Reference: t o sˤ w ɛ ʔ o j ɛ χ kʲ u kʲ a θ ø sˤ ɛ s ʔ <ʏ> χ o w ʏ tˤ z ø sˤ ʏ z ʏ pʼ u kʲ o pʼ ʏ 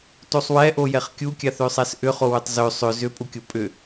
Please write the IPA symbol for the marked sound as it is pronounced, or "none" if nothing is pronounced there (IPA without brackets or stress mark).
ʏ